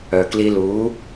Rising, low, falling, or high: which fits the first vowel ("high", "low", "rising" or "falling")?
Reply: low